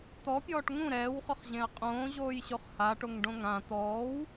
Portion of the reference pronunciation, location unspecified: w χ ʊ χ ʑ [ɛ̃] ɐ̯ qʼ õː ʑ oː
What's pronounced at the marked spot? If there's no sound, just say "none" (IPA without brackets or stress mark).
ẽ